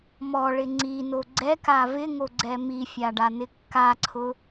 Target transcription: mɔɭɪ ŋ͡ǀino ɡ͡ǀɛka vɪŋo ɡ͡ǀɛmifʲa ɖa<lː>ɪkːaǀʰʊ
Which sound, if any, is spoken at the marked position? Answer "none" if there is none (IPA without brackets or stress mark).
n